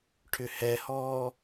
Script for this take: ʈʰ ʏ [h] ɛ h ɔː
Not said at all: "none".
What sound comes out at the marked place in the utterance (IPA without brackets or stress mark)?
h